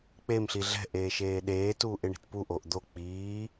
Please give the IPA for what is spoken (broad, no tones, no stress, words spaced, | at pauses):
k͡pem ɬiɮɛ̤ ʔeːʃeːɗeː tuːʔɪɳi̤tpu ʔoʔd̪o k͡piː